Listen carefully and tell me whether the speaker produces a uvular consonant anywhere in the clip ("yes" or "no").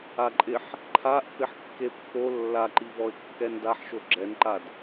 no